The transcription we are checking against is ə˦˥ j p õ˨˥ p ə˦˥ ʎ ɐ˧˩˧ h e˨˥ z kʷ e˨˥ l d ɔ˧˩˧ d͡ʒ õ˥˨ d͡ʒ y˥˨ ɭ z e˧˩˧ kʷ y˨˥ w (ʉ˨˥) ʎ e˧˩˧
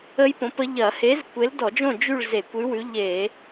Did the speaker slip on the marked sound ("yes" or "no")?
no